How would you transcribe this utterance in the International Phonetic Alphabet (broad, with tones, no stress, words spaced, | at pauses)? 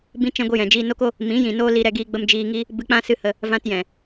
bĩ˦t͡ʃɛ̃˦ɡʷɨ˧jɛ̃˨ d͡ʒiː˧no˦ko˦ | mĩ˨˦jĩ˨ noː˦li˧ ɾɛ˧ ɡiː˧ɡ͡bə˧m d͡ʒiː˧ŋi˦ | bɨ˧k͡pã˦sɨ˧hə˧ | vã˧tjɛ̃˨